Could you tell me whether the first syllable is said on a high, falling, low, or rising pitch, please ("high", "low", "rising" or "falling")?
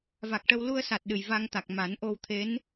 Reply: low